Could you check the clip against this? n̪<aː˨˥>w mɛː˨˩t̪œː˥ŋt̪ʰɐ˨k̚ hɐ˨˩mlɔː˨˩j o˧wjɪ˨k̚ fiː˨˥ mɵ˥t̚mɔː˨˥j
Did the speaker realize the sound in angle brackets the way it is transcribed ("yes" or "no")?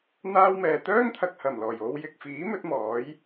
no